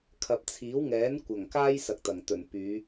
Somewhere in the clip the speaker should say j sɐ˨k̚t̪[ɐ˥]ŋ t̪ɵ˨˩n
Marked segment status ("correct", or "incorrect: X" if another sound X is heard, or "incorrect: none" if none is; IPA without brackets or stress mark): incorrect: ɐ˨˩